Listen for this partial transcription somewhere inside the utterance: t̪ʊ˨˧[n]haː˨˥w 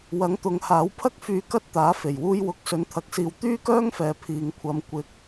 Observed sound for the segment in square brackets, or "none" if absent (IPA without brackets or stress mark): ŋ